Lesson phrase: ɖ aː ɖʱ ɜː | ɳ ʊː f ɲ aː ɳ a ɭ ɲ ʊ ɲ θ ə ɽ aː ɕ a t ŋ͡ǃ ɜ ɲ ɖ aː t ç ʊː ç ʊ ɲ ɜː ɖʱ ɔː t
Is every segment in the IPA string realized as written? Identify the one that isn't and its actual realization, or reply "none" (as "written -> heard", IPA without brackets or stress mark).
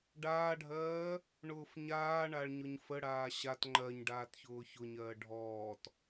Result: θ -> f